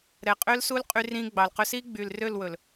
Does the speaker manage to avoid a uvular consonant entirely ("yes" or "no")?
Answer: no